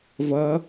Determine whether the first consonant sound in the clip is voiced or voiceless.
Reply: voiced